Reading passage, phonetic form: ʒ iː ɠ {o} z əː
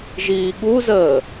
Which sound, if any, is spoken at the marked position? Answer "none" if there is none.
u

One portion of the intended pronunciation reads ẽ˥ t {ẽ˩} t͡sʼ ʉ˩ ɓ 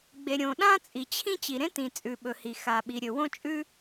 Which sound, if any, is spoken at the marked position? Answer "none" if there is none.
ĩ˩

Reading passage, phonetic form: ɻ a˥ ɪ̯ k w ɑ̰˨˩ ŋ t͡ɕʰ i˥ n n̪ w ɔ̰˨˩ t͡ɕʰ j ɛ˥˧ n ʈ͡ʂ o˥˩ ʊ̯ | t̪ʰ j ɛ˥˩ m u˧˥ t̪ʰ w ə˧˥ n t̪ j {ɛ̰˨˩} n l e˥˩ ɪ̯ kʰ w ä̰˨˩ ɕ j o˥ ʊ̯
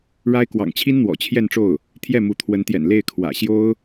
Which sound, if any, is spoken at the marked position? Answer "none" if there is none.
ɛ̰˨˩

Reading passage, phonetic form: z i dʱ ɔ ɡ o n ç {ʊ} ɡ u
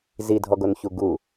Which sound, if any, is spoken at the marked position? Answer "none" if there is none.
u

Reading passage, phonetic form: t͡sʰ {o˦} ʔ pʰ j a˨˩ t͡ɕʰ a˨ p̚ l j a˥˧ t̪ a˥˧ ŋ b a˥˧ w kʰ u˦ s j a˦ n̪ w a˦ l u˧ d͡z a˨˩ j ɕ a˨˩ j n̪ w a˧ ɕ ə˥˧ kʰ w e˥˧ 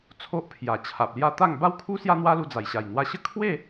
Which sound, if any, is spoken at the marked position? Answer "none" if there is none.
o˦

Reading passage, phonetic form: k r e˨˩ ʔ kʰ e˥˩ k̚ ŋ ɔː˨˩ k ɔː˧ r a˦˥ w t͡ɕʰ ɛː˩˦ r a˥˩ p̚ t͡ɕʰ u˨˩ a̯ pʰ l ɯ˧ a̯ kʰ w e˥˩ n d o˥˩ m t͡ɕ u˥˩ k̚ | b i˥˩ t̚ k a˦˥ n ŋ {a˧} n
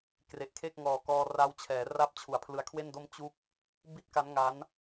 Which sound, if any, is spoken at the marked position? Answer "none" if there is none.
a˦˥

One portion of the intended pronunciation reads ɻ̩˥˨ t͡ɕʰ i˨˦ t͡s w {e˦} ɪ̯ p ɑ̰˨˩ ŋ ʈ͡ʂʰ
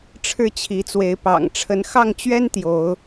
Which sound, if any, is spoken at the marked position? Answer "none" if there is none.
e˨˦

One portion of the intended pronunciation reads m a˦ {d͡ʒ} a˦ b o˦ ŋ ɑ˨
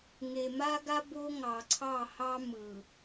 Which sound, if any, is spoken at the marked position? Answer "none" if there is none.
ɡ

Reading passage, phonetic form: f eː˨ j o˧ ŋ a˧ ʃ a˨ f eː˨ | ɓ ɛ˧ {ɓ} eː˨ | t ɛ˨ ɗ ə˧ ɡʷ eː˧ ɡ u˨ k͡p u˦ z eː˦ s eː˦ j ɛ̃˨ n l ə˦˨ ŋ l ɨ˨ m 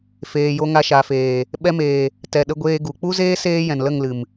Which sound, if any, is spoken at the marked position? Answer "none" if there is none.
m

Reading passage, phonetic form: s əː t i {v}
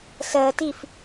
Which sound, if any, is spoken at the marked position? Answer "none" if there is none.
f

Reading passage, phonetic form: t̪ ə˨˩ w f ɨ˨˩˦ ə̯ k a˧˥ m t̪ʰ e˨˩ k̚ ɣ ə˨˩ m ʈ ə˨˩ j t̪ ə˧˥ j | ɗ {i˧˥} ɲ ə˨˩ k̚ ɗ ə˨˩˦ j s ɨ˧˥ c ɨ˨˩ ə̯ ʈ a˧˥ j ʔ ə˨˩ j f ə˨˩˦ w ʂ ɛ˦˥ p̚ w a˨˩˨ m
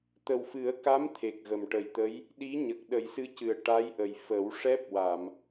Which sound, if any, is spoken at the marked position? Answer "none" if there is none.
i˧˥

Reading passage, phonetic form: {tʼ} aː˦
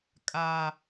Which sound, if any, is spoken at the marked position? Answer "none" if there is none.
kʼ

